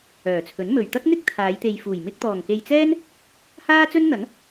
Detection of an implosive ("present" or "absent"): absent